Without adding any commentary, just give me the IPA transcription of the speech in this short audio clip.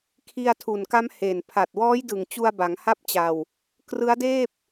kʰ i˧ a̯ tʰ u˨˩ n k a˦˥ m h e˨˩ n pʰ a˨˩ t̚ w ɔː˦˥ j d ɯ˨˩ ŋ t͡ɕ u˧ a̯ b a˩˦ ŋ h a˥˩ p̚ t͡ɕ a˧ w | k r ɯ˦˥ a̯ d eː˥˩ p̚

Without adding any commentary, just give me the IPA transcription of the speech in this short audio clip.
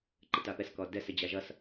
ǃ ə t a p ɛ s k ɔ d ɛ s ə d͡ʑ a ʒ ʌ s

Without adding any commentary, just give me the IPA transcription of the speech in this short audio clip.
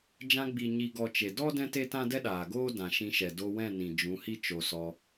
d͡ʒ ã˧ ɡ͡b i˨ ɲ i˨ ɡ ɔ˨ t͡ʃ e˨ d ɔ˦ d ɛ̃˦ t e˦ t ã˦ d ɛ˦ ɗ aː˨ ɡ oː˦ d ã˨ ʃ ĩ˧ ʃ ɛ˨ d o˧ w ɛ̃˦˨ n ĩ˨ d͡ʒ ũ˨˦ h i˦ t͡ʃ o˧ s ɔ˧

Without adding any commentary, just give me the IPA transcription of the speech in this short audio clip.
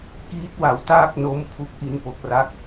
k iː˦˥ t̚ w a˩˦ w t aː˥˩ k̚ n o˦˥ m pʰ u˦˥ k̚ ʔ i˧ n p o˨˩ k̚ r a˥˩ k̚

